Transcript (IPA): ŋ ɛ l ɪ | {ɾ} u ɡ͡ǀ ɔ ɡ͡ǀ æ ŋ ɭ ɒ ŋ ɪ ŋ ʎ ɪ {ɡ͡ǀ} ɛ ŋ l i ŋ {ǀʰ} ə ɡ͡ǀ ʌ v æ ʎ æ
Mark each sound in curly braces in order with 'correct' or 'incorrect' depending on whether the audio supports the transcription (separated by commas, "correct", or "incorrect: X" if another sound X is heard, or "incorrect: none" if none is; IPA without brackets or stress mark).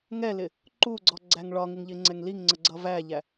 incorrect: ǃ, incorrect: ŋ͡ǀ, incorrect: ŋ͡ǀ